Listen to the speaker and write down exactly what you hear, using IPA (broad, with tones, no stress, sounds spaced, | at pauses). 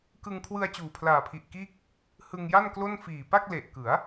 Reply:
k ɯ˧ ŋ kʰ w ɯ˧ a̯ t͡ɕ uː˨˩ pʰ l aː˨˩ pʰ i˨˩ ʔ k iː˥˩ k̚ | h ɯ˧ ŋ j a˥˩ n k l o˥˩ n f iː˨˩ p a˥˩ k̚ l e˨˩ ʔ k ɯ˩˦ a̯